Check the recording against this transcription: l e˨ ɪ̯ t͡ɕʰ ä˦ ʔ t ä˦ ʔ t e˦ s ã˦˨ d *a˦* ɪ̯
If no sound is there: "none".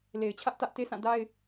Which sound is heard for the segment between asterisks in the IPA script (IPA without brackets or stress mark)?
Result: a˦